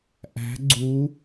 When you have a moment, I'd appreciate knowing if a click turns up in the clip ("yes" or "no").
yes